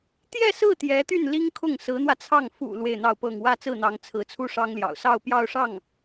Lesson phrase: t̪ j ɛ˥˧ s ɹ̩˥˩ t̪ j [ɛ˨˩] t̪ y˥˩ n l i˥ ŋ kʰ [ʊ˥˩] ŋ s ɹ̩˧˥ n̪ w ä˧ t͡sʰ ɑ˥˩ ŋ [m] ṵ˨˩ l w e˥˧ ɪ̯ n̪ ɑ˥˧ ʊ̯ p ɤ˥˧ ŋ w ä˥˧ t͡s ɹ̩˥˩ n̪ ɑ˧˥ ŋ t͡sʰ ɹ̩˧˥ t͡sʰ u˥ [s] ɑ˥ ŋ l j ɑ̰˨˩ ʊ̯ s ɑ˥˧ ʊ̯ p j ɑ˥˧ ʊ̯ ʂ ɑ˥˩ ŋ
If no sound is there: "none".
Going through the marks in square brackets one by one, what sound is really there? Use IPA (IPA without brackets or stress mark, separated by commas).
ɛ˧˥, ʊ˥˩, f, ʂ